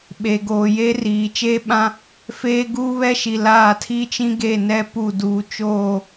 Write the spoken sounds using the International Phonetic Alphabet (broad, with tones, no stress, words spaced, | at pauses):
ɓe˨ ɡoː˨je˦riː˨ t͡ʃeː˦ɓã˦ | feː˦ɡuː˦βɛ˦ʃi˨ laː˦˨tʰi˦ t͡ʃĩ˦ɡe˦˨ nɛ˦ pu˦˨ duː˨t͡ʃoː˦˨